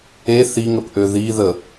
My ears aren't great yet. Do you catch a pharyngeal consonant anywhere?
no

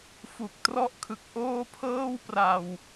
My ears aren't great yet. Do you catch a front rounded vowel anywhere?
no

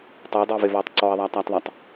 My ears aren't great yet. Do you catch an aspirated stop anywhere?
no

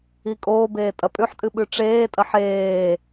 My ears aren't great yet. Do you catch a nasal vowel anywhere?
no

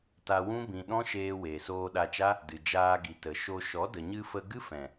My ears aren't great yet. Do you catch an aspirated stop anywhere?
no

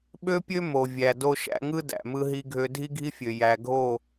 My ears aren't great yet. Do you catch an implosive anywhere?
yes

